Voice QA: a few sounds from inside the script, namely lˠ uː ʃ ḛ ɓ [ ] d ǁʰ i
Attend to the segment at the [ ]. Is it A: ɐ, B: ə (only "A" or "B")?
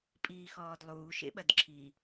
A